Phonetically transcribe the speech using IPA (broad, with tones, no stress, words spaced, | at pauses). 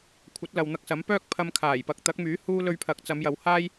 kʷʰɐ˨˥t̚lɐ˨wn̪ɐ˧k̚sɐ˨˥m pœː˥k̚pʰɐ˧m kʰaː˨˩jpɐ˨k̚ t̪ɐ˨˥k̚myː˨˥ huː˥ lɵ˧ɥpʰɐ˨˥k̚ t͡sɐ˨˧mjɐ˨˧whaː˥j